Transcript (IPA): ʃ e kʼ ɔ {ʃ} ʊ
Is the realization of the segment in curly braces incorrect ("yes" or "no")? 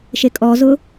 yes